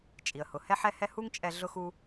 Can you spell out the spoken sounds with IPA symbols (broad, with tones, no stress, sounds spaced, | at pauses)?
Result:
t͡ʃʼ i˩ ə̯ h ʊ˩ h ɛ˥ ħ ɛ˥ h ɛ˥ h u˥ ŋ t͡ʃʼ ɛ˧ ɮ ʊ˥ x u˥